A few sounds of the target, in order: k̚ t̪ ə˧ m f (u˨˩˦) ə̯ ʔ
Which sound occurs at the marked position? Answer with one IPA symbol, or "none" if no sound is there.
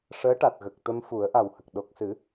u˨˩˦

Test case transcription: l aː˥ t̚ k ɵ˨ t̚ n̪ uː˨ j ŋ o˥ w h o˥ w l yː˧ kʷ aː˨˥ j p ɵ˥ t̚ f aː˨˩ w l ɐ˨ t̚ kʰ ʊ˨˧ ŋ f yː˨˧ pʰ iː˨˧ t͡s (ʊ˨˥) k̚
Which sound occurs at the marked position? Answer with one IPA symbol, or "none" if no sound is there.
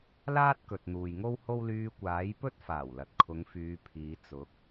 ʊ˨˥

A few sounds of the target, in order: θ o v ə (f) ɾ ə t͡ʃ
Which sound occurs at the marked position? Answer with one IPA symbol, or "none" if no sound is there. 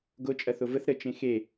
θ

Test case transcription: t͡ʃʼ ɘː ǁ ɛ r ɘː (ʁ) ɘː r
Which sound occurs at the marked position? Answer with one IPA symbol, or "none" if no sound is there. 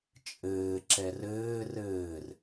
r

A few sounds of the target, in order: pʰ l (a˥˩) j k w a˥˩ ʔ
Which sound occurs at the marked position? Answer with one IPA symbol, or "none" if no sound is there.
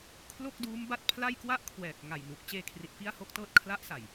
a˥˩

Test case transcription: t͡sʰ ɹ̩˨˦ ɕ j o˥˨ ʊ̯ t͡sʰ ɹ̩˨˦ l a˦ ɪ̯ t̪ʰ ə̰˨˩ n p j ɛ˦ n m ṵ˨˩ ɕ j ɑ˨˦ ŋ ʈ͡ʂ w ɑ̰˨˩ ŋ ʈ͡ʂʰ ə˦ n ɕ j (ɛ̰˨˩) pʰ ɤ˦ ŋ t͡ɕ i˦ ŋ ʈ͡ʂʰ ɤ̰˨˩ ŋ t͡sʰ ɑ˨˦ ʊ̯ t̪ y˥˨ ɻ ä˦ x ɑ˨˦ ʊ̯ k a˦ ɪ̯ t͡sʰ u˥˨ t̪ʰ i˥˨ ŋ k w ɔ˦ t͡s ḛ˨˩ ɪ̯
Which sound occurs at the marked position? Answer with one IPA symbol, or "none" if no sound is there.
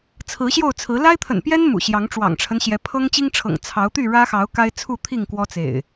ɛ˨˦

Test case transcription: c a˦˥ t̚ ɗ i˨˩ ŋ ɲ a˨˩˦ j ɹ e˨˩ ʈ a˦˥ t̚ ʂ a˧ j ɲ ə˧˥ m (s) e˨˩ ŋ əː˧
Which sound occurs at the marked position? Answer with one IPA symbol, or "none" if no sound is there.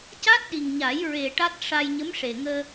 ʂ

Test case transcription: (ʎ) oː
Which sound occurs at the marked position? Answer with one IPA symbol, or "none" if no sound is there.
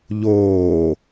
ʎ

